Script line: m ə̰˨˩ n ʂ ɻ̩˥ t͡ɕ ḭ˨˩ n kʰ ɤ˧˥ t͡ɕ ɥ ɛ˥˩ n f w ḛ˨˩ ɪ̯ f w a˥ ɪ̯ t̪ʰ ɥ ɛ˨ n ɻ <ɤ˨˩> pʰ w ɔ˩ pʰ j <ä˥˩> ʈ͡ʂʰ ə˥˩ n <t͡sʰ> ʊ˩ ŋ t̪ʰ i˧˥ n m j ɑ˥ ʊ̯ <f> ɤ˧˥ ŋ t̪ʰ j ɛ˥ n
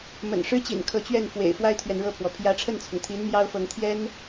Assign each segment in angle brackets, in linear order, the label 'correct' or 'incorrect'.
incorrect: ɤ˥˩, incorrect: ä˧˥, correct, correct

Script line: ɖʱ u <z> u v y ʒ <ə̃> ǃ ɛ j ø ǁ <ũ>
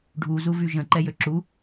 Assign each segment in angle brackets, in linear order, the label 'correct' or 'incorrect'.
correct, correct, incorrect: u

